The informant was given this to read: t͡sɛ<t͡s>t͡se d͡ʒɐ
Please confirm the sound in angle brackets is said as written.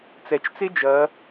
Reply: no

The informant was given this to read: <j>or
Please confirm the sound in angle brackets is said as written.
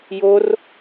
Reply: yes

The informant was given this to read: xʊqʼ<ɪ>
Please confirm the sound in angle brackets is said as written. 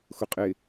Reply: yes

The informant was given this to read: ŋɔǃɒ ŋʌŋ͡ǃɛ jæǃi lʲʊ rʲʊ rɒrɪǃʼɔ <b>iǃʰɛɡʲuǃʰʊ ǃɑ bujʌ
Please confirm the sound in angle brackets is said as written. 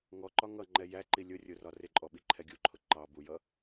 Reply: no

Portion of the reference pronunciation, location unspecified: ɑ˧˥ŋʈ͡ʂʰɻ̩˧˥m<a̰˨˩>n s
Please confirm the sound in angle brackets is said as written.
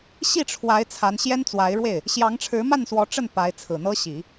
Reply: no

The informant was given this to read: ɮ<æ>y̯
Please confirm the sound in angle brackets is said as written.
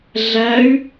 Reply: yes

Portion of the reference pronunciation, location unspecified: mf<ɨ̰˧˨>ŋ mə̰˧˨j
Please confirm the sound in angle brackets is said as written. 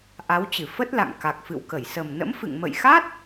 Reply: yes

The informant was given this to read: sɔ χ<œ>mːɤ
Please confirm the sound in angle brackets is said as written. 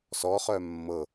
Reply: yes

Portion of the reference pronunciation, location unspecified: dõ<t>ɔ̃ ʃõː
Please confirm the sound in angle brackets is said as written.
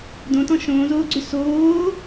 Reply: yes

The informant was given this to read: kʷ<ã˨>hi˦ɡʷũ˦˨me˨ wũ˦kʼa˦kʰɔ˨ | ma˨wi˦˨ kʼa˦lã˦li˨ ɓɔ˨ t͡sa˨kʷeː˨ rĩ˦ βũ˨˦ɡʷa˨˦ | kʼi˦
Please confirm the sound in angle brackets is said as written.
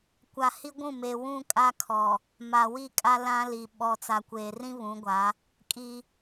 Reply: no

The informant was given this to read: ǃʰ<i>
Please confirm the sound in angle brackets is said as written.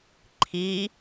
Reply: yes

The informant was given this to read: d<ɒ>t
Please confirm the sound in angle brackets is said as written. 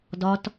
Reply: yes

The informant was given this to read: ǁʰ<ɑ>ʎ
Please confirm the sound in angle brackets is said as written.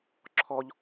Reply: no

